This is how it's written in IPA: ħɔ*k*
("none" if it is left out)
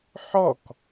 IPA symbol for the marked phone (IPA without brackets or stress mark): k